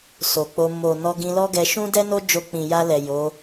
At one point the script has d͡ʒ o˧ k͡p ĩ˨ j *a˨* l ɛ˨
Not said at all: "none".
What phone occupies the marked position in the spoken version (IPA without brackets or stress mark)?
a˧